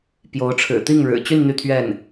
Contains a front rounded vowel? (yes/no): yes